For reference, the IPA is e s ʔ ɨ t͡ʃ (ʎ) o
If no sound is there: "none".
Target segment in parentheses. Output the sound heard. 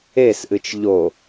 ʎ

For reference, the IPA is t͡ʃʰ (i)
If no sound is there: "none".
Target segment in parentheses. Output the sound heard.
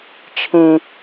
ĩ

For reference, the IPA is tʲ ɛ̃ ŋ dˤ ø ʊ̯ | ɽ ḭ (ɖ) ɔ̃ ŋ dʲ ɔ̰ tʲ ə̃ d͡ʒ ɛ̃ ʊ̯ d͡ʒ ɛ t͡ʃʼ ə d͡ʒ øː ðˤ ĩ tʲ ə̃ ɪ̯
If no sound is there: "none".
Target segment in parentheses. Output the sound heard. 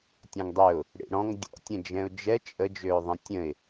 ɽ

